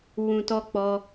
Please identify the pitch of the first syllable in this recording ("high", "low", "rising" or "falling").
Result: low